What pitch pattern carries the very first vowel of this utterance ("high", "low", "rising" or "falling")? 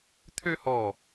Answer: high